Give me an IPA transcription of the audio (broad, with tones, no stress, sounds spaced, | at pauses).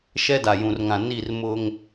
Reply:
ʃ ɛ˦ d a˨ j ũ˨ r ŋ ã˨ n i˦˨ r m ʊ˦ ŋ